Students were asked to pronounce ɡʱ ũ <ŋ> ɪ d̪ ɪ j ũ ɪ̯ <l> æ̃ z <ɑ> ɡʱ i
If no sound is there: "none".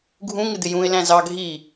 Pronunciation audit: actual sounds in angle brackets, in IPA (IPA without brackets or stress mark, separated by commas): ŋ, l, ɑ